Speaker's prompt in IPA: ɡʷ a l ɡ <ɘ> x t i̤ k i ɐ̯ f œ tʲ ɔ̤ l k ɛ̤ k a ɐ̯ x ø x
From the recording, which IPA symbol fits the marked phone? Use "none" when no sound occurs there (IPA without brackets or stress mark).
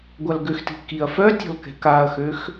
ø